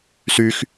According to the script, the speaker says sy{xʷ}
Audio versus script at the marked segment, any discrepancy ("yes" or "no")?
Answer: yes